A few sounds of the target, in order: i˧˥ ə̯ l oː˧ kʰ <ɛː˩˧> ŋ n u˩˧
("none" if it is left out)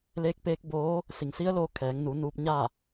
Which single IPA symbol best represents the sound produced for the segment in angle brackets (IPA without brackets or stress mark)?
ɛː˩˧